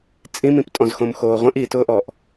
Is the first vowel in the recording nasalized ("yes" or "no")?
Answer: yes